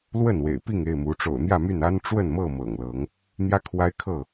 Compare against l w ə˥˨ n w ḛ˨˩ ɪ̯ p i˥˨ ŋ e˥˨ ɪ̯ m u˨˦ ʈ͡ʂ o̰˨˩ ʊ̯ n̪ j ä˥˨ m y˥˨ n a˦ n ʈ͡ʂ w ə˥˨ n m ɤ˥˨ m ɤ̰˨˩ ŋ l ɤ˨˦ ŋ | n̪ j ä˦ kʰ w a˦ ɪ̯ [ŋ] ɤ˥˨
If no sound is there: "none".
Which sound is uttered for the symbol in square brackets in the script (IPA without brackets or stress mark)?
kʰ